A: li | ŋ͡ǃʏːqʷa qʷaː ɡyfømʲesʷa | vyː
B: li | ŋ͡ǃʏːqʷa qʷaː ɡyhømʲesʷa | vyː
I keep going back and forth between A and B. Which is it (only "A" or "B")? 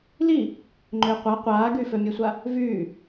A